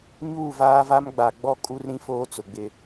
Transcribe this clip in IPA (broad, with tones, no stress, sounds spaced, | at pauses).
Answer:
ɲ uː˦˨ v aː˦ v a˦ m ɡ͡b a˨ ɡ͡b ɔ˦ kʼ u˦ r ɾ ĩ˦ f oː˦ t͡s ʊ˨ ɡ͡b ɪ˦